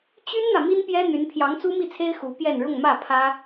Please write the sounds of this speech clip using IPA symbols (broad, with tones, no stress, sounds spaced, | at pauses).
t͡ɕ y˥ n n̪ ä˨ m i˥ n p j ɛ˥ n̪ y˧˥ n pʰ j ɑ˧˥ ŋ t͡s u˥ m i˥˩ t͡sʰ e˥ ɪ̯ x u˧˥ p j ɛ˥˧ n ɻ ʊ˥˧ ŋ m ä˥˩ pʰ ä˥